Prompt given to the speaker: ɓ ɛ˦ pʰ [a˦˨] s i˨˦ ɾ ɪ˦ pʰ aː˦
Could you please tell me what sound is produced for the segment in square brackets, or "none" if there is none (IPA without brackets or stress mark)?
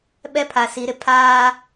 a˨